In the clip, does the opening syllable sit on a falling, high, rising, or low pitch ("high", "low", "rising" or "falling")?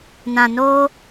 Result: low